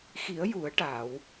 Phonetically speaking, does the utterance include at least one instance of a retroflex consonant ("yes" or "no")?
yes